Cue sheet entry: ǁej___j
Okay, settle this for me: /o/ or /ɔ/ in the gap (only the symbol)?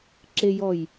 ɔ